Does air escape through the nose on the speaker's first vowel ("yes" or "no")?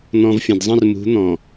yes